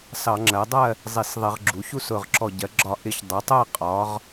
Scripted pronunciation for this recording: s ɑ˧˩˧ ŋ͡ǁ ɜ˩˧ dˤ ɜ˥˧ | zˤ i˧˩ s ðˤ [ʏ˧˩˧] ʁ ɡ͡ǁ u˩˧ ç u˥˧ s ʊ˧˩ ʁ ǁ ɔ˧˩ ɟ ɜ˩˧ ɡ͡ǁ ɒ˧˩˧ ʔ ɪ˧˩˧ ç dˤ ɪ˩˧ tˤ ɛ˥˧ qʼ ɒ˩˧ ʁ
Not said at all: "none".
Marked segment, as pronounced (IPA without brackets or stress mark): ɪ˧˩˧